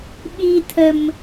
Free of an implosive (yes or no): no